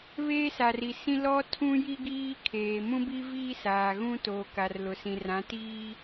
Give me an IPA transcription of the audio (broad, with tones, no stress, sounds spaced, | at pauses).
β eː˦ s a˨ r i˨ s ĩ˦ l ɔ˦ tʰ ũ˦ j i˦ ɡ iː˦ kʰ eː˨ m ũ˦ b i˦ v iː˦ s aː˨ ɣ ũ˦ t oː˨ k a˨ r l ʊ˨ s ĩ˨ r ã˨˦ t iː˦